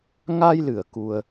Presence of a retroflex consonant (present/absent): absent